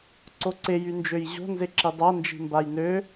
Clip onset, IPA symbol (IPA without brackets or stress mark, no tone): ǀ